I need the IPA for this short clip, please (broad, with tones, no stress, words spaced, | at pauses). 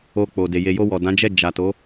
o˧k͡po˨de˨ je˨jo˧wɔ˨ dã˨˦d͡ʒɛ˦˨ d͡ʒa˨ to˨˦